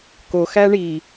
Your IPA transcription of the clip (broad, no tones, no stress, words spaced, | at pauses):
ko xæɳi